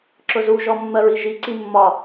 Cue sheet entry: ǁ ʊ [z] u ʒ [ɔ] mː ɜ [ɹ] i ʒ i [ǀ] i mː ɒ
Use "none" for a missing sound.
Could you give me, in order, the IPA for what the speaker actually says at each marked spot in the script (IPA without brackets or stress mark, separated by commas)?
z, ɔ, ɹ, ǀ